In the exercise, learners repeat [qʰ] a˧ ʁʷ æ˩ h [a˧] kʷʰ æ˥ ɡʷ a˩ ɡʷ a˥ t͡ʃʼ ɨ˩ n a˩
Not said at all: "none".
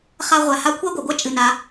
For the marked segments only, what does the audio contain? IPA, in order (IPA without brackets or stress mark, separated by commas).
χ, a˧